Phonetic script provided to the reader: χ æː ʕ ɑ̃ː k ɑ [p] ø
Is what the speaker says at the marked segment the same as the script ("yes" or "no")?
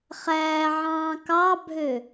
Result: no